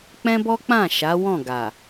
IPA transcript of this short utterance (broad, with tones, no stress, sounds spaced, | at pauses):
k͡p ɛ̃˦ b ɔ˦ k͡p ã˦˨ ʃ a˨˦ w ɔ̃˦˨ ɡ a˨